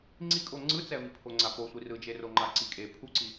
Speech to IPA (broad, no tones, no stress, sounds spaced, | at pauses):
ŋ͡ǀ i kʼ o ŋ͡ǀ ɯ t͡s ɛ v i pʰ o ŋ͡ǀ a p o sʷ i r ɯ d͡ʒ e r o ŋ͡ǃ a ǀ i kʼ e pʰ u ǀ i